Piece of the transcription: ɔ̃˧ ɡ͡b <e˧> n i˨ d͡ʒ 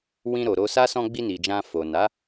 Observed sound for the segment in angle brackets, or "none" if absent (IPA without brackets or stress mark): i˧